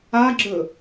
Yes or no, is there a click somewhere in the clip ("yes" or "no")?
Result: yes